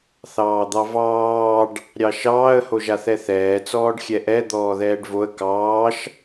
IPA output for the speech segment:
θ ɑː d̪ ɑ v ɑː ɖ | ɾʲ ɑ ʃ ɑː ə̯ h o ʒ a θ ɛ θ ɛː t͡s ɔː ɖ xʲ ɛ ʔ ɛ d̪ ɔː ð ɛː ɖ v o ə̯ k ɑː ʃ

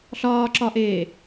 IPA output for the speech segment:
ɬ ɒː ǁ ɒ ʔ eː

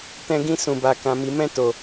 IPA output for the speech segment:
t ɛ̃˧ ɡ ĩ˧ s ũ˨ b a˨ k ã˨ m i˨ m ɛ̃˧ t o˨

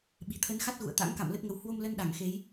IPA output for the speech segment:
ɓ i̤˨˩ t̪ʰ ə˨˦ n x a˦˥ t̚ ɣ ṵ˧˨ ə̯ t̪ a̰˧˥ ŋ k a̰˧˨ m l ə˦˥ t̚ ŋ ə˨˦ w h w o˧ m l ə˧ n ɗ a˧˩ ŋ x e˨˦ j

